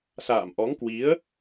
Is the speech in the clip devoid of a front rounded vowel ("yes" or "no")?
yes